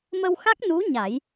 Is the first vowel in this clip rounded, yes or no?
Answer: no